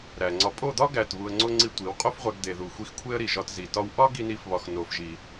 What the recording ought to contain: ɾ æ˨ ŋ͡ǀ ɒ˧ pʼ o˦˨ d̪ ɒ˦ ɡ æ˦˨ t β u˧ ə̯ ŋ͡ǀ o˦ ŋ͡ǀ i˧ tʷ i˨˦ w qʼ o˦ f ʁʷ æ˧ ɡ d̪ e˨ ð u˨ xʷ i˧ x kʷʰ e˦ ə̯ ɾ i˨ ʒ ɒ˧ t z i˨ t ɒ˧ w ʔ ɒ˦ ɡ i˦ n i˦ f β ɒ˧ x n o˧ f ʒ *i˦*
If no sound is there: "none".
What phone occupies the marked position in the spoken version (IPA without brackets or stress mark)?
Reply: i˧